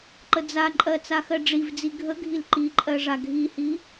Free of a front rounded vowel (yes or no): yes